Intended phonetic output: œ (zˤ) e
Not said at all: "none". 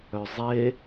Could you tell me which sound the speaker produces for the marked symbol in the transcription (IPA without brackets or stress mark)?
zˤ